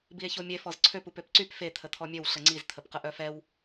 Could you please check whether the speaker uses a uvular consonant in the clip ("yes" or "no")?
yes